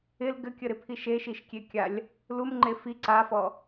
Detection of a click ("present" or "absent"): present